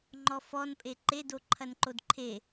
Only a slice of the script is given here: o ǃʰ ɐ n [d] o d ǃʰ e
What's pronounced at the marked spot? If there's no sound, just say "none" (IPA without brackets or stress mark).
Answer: ǃ